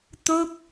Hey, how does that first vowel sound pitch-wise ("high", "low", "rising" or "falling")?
falling